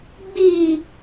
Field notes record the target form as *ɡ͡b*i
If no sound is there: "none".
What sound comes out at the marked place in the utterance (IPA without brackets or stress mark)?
ɡ͡b